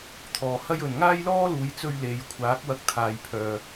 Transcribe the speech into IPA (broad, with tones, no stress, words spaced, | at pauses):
t̪ʰɔː˨hɐ˥jɵ˨n ŋaː˥j lɔː˥luː˨˧jt͡sɵ˧ɥ le˨jkʷʰaː˨˥k̚ wɐ˧k̚t̪ʰaː˨jpʰœː˨